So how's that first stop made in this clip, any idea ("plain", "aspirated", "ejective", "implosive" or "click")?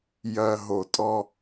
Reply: ejective